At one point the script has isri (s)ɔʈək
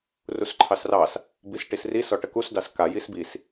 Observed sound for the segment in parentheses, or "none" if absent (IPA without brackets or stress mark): s